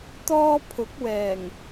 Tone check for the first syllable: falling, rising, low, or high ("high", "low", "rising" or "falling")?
high